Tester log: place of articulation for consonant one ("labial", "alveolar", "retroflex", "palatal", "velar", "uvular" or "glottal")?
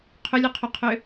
uvular